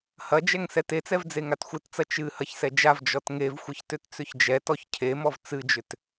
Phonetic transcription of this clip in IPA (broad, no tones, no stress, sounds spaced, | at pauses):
h ɐ d͡ʒ ɛ ŋ s ɛ t e t͡s ɛ v d͡z e ŋ a t xʷ ɨ t t͡s ɐ t͡ʃ ɨ h ɐ ç s ɛ d͡ʒ a v d͡ʒ ɔ t ŋ e v xʷ ɨ ç t ʏ t t͡s ʏ ç d͡ʒ ɛ t ɔ ç cʰ e m ɔ v t͡s ɨ d͡ʒ ʏ t